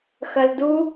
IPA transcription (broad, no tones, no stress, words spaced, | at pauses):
xɐldu